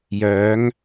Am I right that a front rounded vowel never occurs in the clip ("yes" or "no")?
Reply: no